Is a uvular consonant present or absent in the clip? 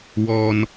absent